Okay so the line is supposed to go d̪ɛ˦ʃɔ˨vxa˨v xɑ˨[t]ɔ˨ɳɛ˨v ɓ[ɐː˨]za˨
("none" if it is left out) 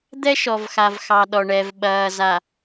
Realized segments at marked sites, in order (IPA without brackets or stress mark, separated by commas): ɗ, ɐː˨